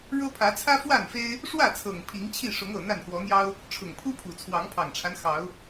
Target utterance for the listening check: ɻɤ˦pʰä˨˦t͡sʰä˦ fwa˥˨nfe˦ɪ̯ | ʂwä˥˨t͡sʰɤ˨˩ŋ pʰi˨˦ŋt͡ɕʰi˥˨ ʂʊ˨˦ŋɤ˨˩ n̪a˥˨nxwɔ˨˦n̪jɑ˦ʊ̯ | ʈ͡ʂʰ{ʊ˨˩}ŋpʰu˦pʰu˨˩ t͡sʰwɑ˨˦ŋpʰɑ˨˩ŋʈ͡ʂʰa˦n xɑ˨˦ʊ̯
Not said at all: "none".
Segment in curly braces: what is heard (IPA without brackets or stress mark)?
ʊ˨˩